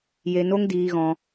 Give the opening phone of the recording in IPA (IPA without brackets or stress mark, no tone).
j